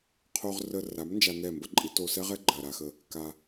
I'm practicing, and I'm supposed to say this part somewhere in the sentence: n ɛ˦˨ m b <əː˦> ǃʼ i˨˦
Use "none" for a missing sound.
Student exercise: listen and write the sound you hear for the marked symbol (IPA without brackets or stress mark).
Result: ə˦